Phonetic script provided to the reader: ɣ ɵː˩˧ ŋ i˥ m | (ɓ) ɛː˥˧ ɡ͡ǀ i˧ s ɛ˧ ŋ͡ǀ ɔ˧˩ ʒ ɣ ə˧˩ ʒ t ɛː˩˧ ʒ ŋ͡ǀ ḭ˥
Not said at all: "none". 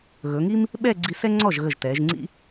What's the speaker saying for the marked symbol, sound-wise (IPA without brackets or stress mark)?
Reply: ɓ